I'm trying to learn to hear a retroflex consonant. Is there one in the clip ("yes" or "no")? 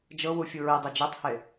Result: no